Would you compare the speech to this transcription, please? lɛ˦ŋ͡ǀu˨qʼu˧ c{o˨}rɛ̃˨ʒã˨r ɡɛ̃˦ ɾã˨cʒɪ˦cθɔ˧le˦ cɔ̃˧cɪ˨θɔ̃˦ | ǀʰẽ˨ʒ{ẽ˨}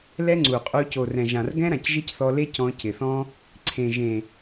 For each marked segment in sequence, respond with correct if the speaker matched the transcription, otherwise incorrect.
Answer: correct, correct

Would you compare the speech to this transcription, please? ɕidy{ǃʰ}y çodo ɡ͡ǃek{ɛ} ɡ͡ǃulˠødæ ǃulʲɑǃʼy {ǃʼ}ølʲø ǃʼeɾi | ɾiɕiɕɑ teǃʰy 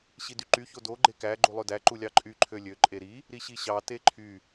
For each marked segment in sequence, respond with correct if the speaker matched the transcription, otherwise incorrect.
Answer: incorrect, incorrect, incorrect

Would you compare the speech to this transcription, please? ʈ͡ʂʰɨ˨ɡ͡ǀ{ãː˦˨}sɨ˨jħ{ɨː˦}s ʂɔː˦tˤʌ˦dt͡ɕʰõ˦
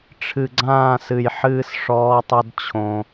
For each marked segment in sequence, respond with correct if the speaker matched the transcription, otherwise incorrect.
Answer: correct, correct

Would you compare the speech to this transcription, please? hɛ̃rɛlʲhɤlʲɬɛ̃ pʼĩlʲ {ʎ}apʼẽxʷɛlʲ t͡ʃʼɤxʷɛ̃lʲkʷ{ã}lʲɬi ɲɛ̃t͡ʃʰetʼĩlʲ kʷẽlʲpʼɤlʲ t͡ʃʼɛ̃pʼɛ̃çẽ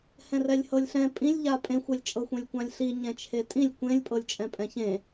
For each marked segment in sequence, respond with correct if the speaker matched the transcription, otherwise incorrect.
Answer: correct, correct

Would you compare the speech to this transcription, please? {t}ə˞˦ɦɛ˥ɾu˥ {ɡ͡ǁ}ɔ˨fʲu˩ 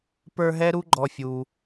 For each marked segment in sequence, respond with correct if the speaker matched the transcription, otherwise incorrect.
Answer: incorrect, incorrect

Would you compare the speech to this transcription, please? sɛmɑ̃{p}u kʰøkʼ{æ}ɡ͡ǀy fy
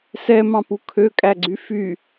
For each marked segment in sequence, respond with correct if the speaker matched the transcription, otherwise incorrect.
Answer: correct, correct

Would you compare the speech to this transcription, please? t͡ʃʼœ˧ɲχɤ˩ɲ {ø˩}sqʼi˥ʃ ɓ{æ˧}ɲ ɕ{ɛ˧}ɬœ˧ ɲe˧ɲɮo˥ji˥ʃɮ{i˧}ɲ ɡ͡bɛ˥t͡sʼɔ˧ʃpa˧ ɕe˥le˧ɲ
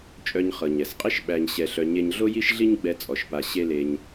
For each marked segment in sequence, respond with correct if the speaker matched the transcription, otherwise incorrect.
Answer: incorrect, correct, correct, incorrect

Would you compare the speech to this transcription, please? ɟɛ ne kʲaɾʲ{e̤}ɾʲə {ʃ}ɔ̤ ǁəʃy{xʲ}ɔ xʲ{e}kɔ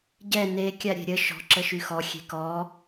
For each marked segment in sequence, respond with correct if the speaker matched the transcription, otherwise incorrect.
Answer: correct, correct, incorrect, incorrect

